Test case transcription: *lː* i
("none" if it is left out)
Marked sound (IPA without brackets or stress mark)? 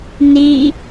n